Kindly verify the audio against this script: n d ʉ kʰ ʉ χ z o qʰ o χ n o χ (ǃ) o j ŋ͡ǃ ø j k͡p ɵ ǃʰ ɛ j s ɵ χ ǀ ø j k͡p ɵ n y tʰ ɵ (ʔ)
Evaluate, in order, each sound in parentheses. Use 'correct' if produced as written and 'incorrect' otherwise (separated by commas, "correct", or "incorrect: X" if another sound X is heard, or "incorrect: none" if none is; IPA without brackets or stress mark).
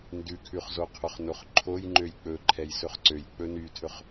incorrect: ǃʰ, incorrect: χ